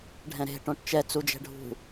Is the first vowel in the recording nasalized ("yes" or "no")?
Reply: yes